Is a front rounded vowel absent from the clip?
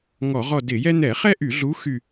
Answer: no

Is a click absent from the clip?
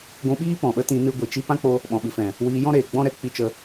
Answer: yes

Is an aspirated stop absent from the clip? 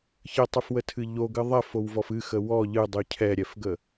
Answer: no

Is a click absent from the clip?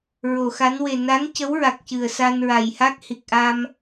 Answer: yes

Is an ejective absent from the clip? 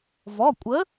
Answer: no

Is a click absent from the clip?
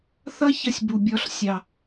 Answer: yes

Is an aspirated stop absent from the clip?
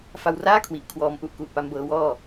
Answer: no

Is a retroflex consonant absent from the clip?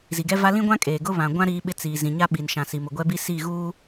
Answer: yes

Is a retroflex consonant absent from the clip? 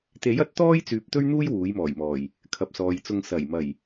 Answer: yes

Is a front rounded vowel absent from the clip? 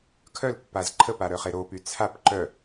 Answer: no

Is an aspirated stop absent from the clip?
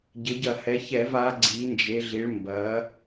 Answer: yes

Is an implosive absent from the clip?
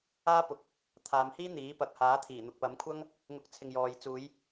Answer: yes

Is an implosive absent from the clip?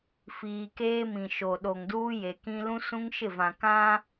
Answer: no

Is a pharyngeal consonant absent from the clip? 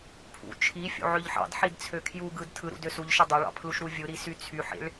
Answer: no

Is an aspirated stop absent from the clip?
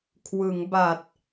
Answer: no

